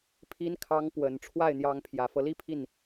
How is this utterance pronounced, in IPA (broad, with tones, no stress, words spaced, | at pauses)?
pʰi˧˥nkʰɑ˧˥ŋ pwə˨˩n ʈ͡ʂʰwa˥˩ɪ̯n̪jɑ˧˥ŋ pʰjä˨˩fɤ˦li˥pʰi˥˩n